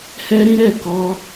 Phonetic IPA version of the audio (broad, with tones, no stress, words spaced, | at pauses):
hɛ˦ɾĩ˦ɾɛ˦˨ kɔ˧